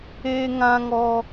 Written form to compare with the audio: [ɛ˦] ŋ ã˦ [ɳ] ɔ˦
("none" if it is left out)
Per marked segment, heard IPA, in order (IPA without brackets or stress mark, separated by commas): e˦, ŋ